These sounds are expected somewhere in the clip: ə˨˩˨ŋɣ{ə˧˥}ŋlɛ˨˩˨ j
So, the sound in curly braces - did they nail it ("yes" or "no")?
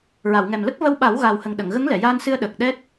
yes